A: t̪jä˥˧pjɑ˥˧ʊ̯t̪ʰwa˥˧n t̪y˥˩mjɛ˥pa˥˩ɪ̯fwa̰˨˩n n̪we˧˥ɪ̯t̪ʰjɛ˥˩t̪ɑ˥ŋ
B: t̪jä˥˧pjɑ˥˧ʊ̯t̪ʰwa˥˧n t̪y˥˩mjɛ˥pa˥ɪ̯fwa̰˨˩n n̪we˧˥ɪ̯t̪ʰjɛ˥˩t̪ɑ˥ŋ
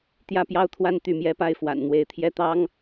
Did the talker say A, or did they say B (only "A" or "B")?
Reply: B